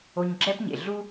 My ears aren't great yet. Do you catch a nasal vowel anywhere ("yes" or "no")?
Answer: no